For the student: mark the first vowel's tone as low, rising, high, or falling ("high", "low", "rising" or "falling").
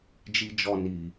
low